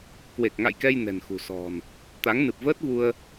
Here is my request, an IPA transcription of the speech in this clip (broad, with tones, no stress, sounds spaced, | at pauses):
k w e˨˩ k̚ ŋ a̰˧˨ j k ɛ˧ j n ɛ̤˨˩ n x ṳ˨˩ s ɔ̤˨˩ n | t̪ a˨˦ ŋ n ɨ˨˩ p̚ v əː˦˥ t̚ v u˧ ə̯